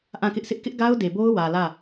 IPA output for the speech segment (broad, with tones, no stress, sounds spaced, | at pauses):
ʔ ã˦˨ k ɪ˦ ʔ s ɪ˦ ʔ k ɪ˦ ʔ ɡ a˦ ʊ̯ d e˨ b o˦ ʊ̯ w ä˨ l ä˦˨